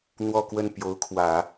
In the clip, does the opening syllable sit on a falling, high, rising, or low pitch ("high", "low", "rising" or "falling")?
falling